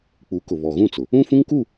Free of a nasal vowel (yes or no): no